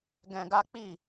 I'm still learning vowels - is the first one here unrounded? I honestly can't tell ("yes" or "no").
yes